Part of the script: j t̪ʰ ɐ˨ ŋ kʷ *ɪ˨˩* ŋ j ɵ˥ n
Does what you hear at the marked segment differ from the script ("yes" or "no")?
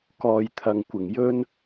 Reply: no